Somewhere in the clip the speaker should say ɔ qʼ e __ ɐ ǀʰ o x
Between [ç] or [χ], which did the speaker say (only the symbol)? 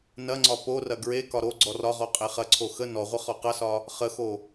χ